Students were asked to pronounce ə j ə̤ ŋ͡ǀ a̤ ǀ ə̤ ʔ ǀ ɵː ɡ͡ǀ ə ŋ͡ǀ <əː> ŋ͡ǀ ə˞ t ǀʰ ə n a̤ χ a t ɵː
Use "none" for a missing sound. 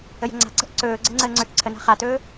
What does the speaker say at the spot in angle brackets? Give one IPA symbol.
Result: əː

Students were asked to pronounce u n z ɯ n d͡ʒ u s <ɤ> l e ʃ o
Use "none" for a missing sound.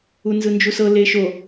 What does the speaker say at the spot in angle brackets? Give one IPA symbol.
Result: ɤ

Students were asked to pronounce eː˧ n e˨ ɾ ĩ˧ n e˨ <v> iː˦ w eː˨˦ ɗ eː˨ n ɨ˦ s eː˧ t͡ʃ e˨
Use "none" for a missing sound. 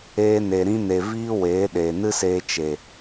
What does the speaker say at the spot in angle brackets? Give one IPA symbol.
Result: v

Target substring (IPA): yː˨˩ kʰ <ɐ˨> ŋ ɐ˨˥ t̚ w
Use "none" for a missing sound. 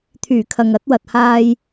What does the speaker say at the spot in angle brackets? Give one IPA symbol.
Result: ɐ˨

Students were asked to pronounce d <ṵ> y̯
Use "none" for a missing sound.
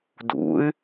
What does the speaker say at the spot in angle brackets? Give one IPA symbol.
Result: ṵ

